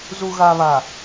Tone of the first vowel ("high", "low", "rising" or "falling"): low